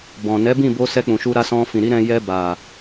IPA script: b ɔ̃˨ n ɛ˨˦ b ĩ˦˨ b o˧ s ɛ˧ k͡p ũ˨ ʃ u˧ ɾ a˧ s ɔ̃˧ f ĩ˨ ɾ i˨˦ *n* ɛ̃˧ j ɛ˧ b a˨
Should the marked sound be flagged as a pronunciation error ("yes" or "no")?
yes